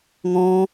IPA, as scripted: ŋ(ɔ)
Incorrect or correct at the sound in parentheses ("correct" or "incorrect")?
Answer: incorrect